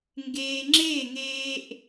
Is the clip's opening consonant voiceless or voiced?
voiced